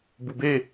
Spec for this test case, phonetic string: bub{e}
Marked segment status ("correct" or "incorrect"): correct